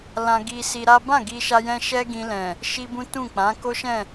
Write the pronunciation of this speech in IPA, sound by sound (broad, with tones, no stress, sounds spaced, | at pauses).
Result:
l ã˧ ɡ i˧ s i˧ ɾ a˦ b ã˦˨ ɡ i˧ ʃ a˧ j ɛ̃˧ ʃ ɛ˦ ɡ ĩ˧ l ɛ̃˨ | ʃ i˦ b ũ˦ t ũ˦˨ k͡p ã˨˦ k o˦ ʃ ɛ̃˦˨